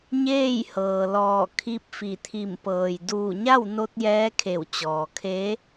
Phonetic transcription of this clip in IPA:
ɲeː˥˨jhɤː˩lɔː˧˩ kʰi˧˥p̚fi˧˩ t̪ʰi˧˩mpɤː˩j duː˧˩ɲa˥˨wno˧t̚ jɛː˧˥kʰe˧˩w t͡ɕɔː˩kʰe˧˥

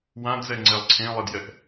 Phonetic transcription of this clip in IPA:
wãdzɛŋ͡ǀɛlˠ ǀʰẽlˠedjɛʔ

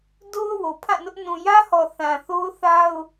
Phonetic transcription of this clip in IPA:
do˦ʊ̯ wo˨pʰã˦˨nʊ˦ʔ nũ˨jä˦hɔ˨ θã˨θo˦ʊ̯θa˦ʊ̯

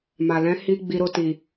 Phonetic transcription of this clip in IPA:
ma˨ lɛ̃˨˦hi˧ ɡ͡bi˧ɾo˧ti˨

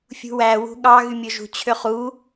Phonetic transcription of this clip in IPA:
fʲṳwæ wṳɠɑ ɣymʲoʒṳ t͡ɕʰøχu

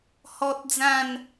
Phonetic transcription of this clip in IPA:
hɔ˦t̚d͡zã˥˧n

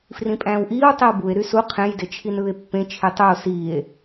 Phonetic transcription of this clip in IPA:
frĩpʼæ̃ːwʔiːw tˤiwbue̯ ɾysu qʰẽj det͡ʃʰinɯːe̯pːẽ t͡ʃʰitˤuo̯ siːe̯

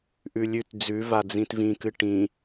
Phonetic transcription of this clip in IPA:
ʔʉlʲʉt d͡zʉvad͡zĩt vĩkɨ ʈĩ

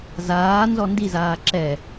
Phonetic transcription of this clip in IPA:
zaː nzɔndizaː ǁɛ

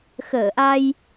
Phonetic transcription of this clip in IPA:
xəː˧˩ʔa˧j

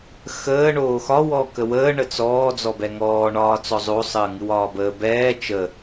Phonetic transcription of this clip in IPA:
xəː ɳoːxɒ wɔːkəwəː ɳət͡sɔː d͡zɔbɛŋɔː ɳɒːt͡sɔzˤo sˤəːŋɨwɒːbəː bɛː t͡ʃə

